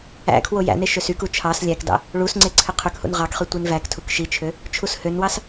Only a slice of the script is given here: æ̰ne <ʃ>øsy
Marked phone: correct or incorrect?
correct